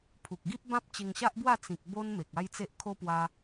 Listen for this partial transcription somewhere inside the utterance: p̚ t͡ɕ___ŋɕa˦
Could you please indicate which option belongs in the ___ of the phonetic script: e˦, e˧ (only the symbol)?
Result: e˧